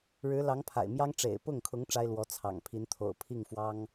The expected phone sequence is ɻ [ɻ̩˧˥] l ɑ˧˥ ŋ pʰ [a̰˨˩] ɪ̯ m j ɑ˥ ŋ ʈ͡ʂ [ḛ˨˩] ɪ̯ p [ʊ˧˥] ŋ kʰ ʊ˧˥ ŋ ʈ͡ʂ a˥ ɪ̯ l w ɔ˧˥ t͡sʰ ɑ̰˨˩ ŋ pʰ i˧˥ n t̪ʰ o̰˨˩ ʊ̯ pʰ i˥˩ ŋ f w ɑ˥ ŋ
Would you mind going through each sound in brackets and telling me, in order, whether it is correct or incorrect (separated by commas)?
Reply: correct, correct, correct, incorrect